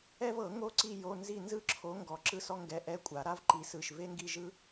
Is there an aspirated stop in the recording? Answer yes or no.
yes